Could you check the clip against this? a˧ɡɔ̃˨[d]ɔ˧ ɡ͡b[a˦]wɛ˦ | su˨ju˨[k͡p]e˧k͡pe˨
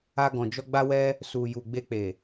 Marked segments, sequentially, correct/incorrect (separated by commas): incorrect, correct, incorrect